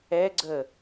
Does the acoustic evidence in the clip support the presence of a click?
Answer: yes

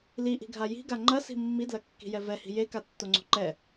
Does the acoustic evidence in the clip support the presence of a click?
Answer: yes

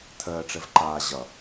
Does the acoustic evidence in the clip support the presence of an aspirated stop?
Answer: yes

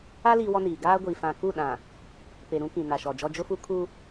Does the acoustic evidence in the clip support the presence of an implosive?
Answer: yes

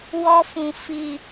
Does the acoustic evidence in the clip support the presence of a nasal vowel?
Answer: yes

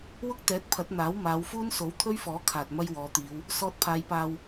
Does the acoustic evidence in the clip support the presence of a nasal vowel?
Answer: no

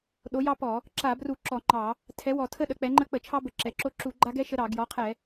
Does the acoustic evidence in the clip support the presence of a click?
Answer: yes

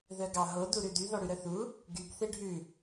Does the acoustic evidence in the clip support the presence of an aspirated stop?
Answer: no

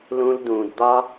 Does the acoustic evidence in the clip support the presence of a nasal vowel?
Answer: yes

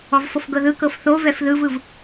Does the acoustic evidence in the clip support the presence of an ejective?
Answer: no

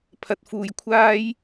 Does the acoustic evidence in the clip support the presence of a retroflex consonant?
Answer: no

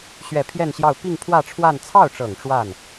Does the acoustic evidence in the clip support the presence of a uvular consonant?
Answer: no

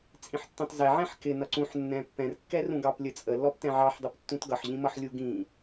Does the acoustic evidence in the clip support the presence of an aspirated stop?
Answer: no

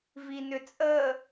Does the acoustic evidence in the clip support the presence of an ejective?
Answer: yes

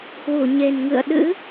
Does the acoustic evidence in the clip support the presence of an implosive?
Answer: yes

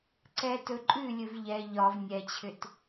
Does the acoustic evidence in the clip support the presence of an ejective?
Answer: yes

